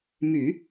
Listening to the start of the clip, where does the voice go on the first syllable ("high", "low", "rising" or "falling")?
low